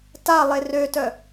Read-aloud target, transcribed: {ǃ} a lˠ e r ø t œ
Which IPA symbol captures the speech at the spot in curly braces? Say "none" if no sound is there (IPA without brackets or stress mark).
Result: t